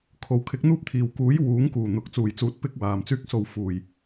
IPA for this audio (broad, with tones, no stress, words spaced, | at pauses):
kʰo˨˩wkʰɪ˨˥k̚ n̪uː˥p̚t̪ʰiː˨˩wkuː˨˥j wuː˨˥ŋkuː˨˩ n̪ʊ˨k̚ t͡suː˨˩jt͡suː˨˥t̚pɪ˧k̚ waː˨˩mt͡syː˧k̚so˨w fuː˨˩j